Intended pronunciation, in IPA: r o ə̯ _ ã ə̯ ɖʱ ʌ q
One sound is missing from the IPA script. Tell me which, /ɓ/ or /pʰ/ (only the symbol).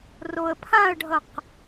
pʰ